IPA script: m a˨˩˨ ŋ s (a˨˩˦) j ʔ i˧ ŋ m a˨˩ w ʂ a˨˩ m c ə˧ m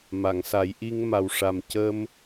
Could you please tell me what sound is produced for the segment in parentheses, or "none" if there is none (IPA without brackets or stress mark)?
a˨˩˦